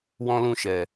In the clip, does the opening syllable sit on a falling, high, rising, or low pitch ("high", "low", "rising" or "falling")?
high